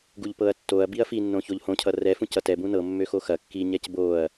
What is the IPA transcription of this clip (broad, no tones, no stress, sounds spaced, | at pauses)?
ɡ u ʎ p ɤ ɐ̯ tː o ɐ̯ b i ɐ̯ f i nː õ ç o ʎ h õ cʰ ʌ r ɛ f ũ c ʌ t ɛ b ũ n ɤ mː ø x o x ɐ kː i ɲ ɛ c b o ɐ̯